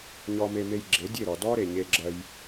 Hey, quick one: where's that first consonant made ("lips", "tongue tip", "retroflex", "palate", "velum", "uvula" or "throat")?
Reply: palate